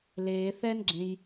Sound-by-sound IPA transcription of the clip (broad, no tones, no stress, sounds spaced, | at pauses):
l eː θ ɛ n ɡ͡ǁ ẽ j